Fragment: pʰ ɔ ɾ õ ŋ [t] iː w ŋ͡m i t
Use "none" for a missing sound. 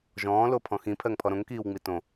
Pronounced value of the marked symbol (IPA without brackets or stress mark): k